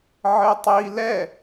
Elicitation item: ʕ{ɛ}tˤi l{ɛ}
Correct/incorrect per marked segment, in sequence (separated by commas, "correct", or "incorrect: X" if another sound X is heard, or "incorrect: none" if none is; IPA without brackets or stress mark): incorrect: ɘ, correct